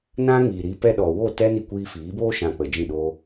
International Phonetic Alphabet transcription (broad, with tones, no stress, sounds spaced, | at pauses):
n ã˦ ŋ iː˨ ɾ i˧ p ɛ˦ ɗ ɔ˨ w o˦˨ t ɛ˦ n i˧ kʷ iː˧ f iː˨˦ b oː˦ ʃ ã˧ k͡p ə˨ d͡ʒ ĩ˦˨ ɗ o˧